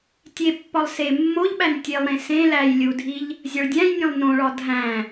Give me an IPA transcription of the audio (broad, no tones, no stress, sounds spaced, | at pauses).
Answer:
tʲ e pː ɒ lˠ s e mː o ʎ ɓ æ n tʲ e lˠ ɾ ẽ s ẽ l æ j lʲ u dʱ i ʎ | zʲ ɒ ɭ dʲ æ̃ j nʲ ẽ lˠ n õ ɭ ɒ dʱ æ̃